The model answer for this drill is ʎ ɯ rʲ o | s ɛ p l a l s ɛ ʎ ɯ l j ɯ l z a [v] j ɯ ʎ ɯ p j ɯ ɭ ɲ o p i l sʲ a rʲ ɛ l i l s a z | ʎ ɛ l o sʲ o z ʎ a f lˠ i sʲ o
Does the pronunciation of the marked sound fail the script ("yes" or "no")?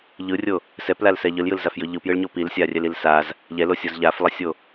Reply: yes